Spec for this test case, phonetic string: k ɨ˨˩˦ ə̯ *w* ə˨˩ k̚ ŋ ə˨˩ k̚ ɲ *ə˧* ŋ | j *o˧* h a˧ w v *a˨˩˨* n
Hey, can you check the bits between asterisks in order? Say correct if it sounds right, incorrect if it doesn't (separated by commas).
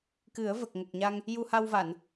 incorrect, incorrect, incorrect, correct